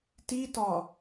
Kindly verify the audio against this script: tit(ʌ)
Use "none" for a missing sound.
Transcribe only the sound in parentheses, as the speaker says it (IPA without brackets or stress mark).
ɒ